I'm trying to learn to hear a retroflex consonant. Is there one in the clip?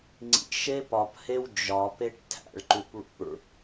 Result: yes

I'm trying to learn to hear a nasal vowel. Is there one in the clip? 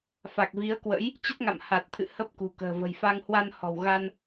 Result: no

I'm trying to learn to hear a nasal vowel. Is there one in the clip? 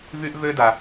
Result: no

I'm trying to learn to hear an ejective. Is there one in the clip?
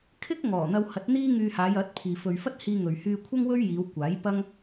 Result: no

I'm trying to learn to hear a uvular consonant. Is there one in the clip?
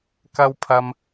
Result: no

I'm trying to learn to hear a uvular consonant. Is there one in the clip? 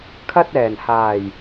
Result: no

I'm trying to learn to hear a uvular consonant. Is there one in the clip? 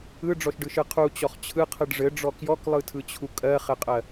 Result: yes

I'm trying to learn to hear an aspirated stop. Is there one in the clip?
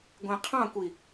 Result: yes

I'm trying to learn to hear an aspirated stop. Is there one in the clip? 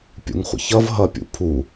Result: yes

